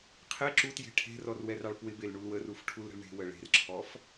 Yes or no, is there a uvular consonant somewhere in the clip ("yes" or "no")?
yes